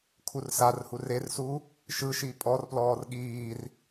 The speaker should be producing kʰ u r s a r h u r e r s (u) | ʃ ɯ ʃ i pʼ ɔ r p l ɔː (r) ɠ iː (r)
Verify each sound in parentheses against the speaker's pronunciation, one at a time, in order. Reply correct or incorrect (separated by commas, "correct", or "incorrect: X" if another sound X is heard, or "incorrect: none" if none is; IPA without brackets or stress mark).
correct, correct, correct